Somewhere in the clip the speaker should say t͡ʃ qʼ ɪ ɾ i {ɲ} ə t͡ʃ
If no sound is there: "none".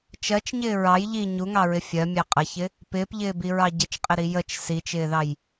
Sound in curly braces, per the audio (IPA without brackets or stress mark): j